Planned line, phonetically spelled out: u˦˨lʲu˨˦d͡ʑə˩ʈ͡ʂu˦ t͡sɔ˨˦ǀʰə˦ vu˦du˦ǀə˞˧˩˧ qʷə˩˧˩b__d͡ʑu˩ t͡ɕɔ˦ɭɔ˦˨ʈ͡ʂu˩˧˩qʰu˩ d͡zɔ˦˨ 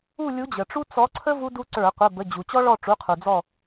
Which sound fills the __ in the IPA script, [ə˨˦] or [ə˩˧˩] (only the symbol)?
ə˩˧˩